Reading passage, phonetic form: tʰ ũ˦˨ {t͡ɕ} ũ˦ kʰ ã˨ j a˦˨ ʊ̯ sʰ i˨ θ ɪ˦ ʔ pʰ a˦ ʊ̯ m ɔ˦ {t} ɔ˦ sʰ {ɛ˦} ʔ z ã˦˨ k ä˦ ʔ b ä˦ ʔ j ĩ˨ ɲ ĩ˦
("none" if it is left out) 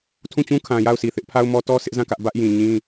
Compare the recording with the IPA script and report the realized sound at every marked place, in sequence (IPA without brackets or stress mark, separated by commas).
t͡ɕ, t, ɪ˦